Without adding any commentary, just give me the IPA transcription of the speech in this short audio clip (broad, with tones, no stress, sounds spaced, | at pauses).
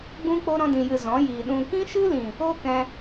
ɡ͡b ũ˦ k͡p o˦ ɾ ɔ̃˧ d ĩ˨ j ɨ˨ z ɔ̃˨˦ j iː˨ ɗ ũ˨ k ĩ˦ ʃ ɨ˦ l ĩ˨ | o˦ k ɛ̃˧